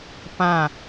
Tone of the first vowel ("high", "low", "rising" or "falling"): falling